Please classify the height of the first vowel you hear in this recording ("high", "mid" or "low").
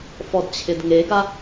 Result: mid